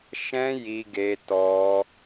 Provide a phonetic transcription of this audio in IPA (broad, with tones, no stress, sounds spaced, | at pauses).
ʃ ɛ̃˦ j i˧ ɡ e˧ t ɔ˧